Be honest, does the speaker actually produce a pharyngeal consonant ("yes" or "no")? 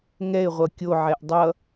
yes